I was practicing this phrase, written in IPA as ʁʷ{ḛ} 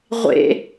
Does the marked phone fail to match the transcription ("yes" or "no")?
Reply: no